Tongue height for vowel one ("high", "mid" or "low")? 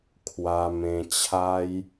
low